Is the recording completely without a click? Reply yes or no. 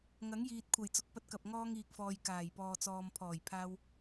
yes